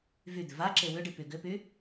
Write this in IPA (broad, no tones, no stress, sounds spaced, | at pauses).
v y d̪ ʏ v a ǁ e w ʏ ɖ i p y ɡ ʏ p y